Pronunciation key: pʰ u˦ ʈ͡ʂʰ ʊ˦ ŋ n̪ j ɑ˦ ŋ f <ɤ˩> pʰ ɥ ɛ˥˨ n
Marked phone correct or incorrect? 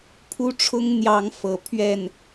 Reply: incorrect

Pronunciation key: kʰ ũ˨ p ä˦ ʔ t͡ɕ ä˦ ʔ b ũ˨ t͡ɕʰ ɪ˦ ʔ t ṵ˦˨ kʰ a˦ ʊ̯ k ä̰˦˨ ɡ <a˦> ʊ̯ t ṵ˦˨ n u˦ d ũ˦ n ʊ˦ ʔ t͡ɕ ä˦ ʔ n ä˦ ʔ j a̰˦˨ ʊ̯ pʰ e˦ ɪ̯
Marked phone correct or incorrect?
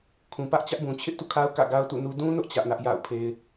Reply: correct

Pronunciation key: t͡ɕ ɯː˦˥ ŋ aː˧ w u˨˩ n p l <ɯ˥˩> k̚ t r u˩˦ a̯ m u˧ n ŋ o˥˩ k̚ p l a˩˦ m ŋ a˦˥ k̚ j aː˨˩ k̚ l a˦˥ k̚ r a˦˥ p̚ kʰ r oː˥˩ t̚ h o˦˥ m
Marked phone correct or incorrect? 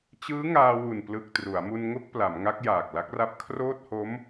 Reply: incorrect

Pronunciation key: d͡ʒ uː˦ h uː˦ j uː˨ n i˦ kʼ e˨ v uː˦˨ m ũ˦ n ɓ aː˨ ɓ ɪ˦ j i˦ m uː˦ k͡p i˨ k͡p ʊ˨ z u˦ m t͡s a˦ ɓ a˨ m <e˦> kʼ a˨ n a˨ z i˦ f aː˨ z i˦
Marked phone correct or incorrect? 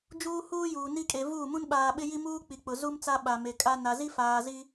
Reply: incorrect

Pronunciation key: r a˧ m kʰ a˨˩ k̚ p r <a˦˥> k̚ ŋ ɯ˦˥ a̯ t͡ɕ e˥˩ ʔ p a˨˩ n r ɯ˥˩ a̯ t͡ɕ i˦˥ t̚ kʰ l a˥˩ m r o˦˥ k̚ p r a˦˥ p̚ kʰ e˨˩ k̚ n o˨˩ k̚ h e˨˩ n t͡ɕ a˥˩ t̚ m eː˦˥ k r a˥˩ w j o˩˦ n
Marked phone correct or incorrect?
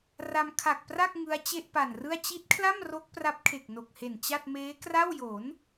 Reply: incorrect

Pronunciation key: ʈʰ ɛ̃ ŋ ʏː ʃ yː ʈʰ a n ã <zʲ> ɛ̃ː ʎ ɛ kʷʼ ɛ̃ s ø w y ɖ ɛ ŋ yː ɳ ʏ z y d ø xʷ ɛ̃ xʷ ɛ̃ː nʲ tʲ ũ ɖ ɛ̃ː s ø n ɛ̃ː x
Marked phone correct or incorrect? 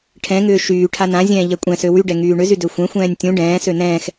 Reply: correct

